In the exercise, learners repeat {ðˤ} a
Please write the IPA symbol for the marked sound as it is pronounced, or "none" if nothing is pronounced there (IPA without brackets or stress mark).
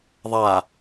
ðˤ